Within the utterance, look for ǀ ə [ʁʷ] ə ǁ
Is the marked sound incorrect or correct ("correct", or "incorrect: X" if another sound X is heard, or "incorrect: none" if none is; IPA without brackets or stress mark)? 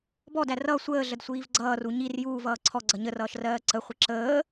incorrect: χʷ